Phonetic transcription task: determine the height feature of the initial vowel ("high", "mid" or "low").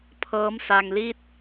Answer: mid